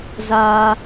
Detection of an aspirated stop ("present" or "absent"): absent